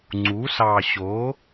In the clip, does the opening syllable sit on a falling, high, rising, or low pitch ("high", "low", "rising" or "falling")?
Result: rising